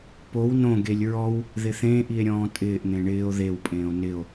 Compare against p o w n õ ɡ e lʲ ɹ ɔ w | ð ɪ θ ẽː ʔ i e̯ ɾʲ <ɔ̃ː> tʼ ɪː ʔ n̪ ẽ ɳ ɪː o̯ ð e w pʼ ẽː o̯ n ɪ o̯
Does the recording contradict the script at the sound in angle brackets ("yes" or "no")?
no